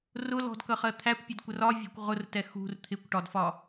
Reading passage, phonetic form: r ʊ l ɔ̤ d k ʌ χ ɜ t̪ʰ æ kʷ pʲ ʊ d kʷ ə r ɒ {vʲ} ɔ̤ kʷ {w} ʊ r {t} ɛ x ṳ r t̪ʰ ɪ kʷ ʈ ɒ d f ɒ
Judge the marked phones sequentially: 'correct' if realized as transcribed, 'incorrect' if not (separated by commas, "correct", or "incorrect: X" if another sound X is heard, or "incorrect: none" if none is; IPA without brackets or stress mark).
correct, incorrect: ʁ, correct